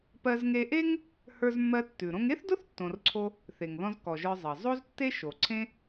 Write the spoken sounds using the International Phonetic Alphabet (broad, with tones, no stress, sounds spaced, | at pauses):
p ɜ˧ z ŋ e˧ ʔ e˥ ŋ | h ə˞˧ z mː ɜ˧ tː ʉ˩ ɾ õ˧ ŋ e˥ θ d ʊ˥ θ tː õ˧ r ǀʰ o˥ | θ e˩ ŋ ð ɔ̃˧ z k ɔ˩ ʒ ə˞˧ zˤ ɜ˩ zˤ o˥ z tː e˥ ʃ o˩ ǀʰ ẽ˥